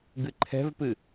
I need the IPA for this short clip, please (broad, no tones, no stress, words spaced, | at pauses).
ɡɨǃʰɛ̤vpɨ